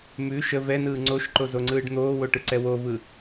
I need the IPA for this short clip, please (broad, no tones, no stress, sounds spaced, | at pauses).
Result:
m ʉ ʃ ə v ɛ n ɯː ŋ͡ǀ o ʃ ǃ o z o ŋ͡ǀ ɯː ɖ n̪ oː w o ʈ ɯ ǀ ɛ w o v ɯ